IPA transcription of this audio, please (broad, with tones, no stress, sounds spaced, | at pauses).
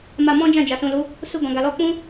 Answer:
m a˧ m ɔ̃˦ d͡ʒ ã˦˨ d͡ʒ a˨ s ũ˨ l u˨˦ | s u˧ ɡ ɔ̃˨ ɡ a˨ l ɔ˧ k͡p ũ˦